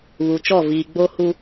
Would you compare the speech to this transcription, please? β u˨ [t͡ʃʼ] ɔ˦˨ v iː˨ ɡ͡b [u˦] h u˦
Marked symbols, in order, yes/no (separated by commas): no, no